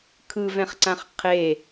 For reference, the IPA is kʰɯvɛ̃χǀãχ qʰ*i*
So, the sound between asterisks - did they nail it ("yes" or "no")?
no